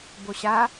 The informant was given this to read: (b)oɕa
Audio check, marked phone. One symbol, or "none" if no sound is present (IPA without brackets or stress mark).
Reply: b